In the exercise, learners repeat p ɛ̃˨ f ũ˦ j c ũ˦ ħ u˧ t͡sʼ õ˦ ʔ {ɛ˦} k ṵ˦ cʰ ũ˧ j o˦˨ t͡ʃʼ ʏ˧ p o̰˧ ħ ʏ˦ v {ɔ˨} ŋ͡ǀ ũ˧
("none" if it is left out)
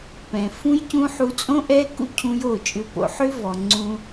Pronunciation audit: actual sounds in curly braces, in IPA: ɛ˦, ɔ˨

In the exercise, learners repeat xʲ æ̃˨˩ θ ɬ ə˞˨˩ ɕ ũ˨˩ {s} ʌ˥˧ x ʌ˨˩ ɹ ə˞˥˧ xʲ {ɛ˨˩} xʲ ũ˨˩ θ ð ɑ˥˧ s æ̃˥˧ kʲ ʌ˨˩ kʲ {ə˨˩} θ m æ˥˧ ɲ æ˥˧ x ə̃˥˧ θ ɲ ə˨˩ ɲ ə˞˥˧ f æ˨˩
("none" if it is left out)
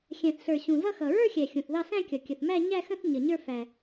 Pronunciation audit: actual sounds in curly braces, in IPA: z, æ˨˩, ə˨˩

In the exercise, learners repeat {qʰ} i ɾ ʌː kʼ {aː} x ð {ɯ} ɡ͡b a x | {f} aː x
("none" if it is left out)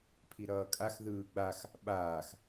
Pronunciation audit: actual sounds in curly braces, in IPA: pʰ, a, ɯː, ɓ

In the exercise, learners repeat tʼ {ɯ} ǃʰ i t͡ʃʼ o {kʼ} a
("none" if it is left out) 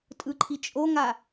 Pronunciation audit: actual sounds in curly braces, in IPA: ɯ, ŋ

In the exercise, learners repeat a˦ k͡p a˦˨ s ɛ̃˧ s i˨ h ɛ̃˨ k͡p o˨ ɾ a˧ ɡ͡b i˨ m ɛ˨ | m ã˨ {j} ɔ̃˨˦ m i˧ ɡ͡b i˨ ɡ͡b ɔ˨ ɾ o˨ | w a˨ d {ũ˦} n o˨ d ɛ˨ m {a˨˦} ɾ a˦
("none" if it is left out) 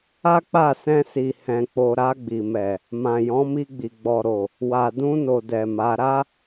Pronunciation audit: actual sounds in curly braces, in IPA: j, ũ˧, a˨˦

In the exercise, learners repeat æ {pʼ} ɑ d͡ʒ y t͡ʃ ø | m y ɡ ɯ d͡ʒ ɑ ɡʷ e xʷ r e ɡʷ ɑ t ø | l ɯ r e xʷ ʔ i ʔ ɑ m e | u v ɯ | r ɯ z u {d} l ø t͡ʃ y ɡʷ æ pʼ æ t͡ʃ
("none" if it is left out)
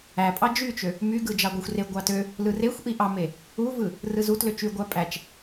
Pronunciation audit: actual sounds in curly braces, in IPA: pʼ, t

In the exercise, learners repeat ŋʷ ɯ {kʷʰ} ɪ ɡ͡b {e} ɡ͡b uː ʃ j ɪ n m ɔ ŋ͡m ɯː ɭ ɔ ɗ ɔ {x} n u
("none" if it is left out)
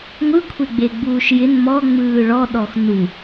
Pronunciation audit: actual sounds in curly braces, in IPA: kʷʰ, e, x

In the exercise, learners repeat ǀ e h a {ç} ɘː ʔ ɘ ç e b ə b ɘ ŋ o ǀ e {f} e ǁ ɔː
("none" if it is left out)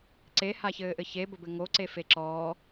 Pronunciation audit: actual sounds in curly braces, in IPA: ç, f

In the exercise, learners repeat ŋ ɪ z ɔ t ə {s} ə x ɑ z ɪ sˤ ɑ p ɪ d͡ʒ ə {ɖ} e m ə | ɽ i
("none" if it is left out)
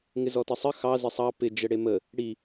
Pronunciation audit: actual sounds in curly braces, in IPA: sˤ, ɽ

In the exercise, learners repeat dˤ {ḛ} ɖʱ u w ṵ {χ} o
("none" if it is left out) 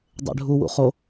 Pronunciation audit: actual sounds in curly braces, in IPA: ḛ, χ

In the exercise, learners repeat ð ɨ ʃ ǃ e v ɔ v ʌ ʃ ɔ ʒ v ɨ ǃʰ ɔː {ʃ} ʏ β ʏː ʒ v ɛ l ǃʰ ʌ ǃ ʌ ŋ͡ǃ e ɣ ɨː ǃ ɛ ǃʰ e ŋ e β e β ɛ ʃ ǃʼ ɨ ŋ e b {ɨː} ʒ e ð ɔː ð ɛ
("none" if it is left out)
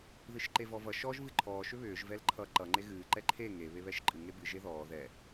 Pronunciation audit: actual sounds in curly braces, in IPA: ʃ, ɨ

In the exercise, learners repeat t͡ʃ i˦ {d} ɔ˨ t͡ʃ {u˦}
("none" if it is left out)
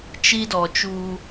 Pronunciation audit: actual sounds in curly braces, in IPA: d, u˦

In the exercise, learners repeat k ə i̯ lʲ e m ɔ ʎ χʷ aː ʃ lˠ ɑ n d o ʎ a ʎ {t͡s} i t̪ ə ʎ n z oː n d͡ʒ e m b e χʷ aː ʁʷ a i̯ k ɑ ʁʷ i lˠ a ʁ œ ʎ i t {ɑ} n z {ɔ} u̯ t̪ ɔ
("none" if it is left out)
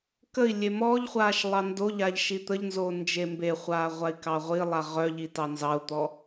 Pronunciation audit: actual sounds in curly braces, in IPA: ʃ, ɑ, ɑ

